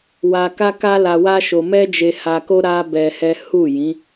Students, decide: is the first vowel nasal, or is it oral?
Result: oral